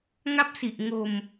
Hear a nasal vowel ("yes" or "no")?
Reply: no